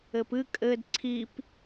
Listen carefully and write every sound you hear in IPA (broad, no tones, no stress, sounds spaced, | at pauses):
ɘ p ɨ kʼ ɘː d ǀʰ i p